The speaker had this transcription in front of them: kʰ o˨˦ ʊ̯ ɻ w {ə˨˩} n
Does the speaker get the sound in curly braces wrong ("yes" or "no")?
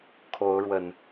no